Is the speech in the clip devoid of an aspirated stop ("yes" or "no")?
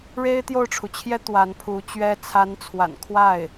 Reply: no